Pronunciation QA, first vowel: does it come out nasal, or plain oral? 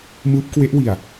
oral